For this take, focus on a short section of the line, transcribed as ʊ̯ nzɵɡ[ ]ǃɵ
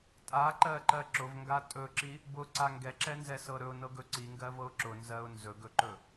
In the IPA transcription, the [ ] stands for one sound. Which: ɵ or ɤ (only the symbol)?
ɵ